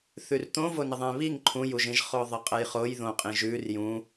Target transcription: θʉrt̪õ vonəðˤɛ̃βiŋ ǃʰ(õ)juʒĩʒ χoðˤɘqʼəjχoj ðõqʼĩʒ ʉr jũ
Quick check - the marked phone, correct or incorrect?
incorrect